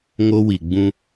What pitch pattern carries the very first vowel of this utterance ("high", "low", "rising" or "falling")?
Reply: high